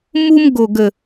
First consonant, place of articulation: labial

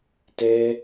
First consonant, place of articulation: alveolar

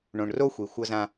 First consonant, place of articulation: retroflex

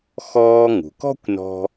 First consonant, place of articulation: velar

